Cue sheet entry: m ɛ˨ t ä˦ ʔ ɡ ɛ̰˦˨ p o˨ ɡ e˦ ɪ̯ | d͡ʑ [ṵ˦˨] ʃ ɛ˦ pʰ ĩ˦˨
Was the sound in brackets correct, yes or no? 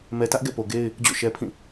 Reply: no